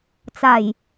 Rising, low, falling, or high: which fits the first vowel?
low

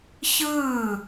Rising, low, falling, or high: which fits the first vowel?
falling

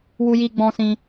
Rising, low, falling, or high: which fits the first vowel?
high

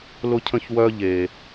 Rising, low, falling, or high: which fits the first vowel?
high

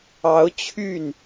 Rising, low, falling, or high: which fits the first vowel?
rising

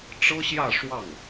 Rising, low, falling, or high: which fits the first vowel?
high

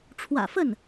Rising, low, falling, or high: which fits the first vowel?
low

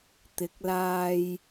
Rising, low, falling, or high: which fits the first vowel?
rising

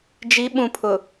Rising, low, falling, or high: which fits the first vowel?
rising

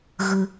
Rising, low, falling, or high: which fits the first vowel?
high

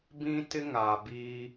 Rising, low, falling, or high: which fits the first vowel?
high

